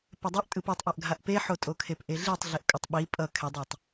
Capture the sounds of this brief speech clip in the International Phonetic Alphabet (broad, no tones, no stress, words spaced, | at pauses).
pɛdˤɯʔtʼɯp etˤ ʔaʔɡʱaʔpeħo tʼokʰepʔeɮitˤ ɮeʔkʼʌtˤɓi pʼʌ kʰɛdˤatˤ